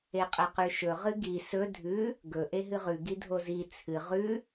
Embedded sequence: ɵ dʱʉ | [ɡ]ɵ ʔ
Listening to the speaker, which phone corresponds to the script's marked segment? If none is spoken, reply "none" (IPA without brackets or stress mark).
ɡ